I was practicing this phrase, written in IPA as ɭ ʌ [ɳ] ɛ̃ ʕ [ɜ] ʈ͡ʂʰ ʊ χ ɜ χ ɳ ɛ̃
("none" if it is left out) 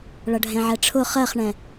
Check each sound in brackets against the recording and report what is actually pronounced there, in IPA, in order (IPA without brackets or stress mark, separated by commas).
ɖʱ, ɛ